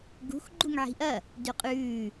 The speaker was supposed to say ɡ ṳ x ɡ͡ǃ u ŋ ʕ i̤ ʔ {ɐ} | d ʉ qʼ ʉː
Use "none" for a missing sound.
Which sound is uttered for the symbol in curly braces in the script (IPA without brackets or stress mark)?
ɐ